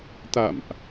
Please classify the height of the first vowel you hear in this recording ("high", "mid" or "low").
low